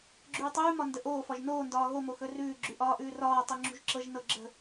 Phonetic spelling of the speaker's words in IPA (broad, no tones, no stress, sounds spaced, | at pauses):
ɡ͡ǁ ʉː tˤ ʉː m ɒ n d ə ʔ oː f ɒ ʒ n oː n d ɒː ɣ o m o x ɵ r ʉː ɡ͡ǁ ʉ ʔ ɒː ʔ ʉː r ɒː tˤ u ŋ͡ǁ ṳ ʒ ǁ ɤ ʒ n ɤ ɡ͡ǁ ə̤